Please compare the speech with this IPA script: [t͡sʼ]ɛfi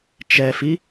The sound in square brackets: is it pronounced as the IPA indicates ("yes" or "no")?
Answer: no